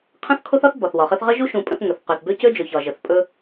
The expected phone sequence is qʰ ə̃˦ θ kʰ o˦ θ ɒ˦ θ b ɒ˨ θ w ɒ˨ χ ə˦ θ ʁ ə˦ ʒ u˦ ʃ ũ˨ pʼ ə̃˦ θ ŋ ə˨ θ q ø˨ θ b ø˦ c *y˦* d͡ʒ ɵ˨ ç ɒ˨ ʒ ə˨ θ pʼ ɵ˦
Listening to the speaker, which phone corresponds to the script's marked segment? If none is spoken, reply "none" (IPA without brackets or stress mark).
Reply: ø˦